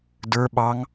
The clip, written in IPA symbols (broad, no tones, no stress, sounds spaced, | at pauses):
d ə˞ ɓ ɑ ŋ